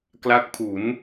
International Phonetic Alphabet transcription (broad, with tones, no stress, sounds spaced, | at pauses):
k l a˦˥ k̚ pʰ u˩˦ n